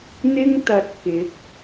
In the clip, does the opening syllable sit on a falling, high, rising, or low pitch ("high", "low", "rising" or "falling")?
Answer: high